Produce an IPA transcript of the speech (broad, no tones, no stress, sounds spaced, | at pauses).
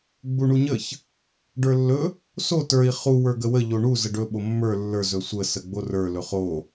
ɡ͡b u ɳ u ɲ ə ç | ɖ ə˞ lː ɵ | s o t ə˞ i̯ χ u w ə˞ ɡ ə w ə ʎ o ɳ u z ə ɖ ɵ ɓ o mː ə˞ lː ə˞ z ɵ sʷ ə s ə ɡ͡b o r ə˞ l ɵ χ o